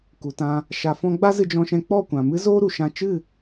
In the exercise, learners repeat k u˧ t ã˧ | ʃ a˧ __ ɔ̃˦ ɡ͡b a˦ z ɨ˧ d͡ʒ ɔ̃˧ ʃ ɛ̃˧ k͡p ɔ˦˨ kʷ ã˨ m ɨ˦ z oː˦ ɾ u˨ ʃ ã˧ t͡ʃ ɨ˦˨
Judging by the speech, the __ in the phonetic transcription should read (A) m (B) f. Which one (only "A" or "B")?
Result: B